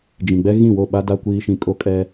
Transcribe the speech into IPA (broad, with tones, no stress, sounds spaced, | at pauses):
d͡ʒ ĩ˨ ɡ͡b ɛ˦ ɣ ĩ˦˨ w o˦˨ ɓ a˦ d a˦ kʷ iː˦ ʃ ĩ˦ kʼ o˦ kʼ ɛ˦